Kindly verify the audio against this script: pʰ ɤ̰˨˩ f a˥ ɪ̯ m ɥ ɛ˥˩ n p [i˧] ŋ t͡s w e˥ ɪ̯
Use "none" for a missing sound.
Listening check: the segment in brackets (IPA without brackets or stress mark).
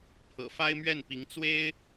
i˧˥